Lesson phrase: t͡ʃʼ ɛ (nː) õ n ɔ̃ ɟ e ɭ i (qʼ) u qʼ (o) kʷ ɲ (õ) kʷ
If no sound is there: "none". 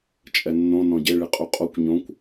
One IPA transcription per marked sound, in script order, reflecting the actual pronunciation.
nː, qʼ, o, õ

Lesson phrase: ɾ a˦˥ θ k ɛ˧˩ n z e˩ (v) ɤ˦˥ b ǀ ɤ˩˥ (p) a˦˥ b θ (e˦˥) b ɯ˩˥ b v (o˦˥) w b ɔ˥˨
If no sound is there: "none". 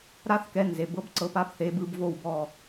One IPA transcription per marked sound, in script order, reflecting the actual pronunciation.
b, p, e˩˥, o˥˨

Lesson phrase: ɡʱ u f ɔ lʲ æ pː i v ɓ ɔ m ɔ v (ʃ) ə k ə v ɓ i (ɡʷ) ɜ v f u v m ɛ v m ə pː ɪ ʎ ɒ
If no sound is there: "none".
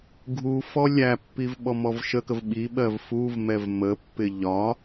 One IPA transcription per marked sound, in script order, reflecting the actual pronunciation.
ʃ, ɓ

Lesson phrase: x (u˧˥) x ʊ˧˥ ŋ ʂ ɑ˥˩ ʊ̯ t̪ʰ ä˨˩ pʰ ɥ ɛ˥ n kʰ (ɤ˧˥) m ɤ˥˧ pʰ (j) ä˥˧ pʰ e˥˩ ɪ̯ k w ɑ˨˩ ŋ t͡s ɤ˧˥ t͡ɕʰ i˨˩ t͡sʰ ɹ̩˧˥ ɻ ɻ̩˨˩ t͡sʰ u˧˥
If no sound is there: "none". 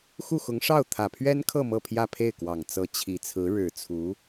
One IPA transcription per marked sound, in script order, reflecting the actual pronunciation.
u˥˩, ɤ˥˧, j

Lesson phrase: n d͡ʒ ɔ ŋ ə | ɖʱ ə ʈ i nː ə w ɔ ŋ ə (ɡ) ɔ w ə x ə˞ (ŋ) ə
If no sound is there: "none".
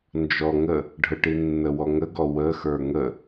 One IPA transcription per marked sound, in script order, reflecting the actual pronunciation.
ɡ, ŋ

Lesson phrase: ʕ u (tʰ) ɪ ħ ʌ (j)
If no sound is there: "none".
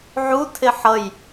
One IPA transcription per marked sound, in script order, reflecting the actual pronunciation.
tʰ, j

